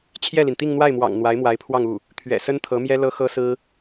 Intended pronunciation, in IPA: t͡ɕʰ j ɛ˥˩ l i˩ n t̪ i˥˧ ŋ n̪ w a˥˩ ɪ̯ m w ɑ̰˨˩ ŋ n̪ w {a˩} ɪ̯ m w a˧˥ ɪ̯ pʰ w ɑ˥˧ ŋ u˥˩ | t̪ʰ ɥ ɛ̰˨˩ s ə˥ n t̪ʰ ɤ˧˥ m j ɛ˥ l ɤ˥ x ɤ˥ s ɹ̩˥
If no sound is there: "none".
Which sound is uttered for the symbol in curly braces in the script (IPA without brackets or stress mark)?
a˧˥